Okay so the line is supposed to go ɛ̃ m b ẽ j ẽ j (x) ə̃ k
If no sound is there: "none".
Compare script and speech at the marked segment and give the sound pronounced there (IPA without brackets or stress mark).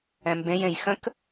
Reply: x